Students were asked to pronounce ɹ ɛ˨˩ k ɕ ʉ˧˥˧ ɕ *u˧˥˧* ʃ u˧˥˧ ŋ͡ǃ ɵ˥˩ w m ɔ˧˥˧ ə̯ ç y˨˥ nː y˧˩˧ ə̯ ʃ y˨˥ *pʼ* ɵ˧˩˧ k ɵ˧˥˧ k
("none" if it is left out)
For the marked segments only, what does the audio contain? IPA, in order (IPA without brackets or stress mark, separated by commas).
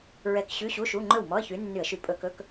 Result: u˧˥˧, pʼ